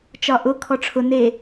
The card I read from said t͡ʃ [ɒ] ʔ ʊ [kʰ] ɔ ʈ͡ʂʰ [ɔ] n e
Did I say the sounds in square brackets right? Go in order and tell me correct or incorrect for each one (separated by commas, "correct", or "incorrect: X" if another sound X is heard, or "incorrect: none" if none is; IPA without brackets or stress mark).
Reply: correct, correct, incorrect: ʊ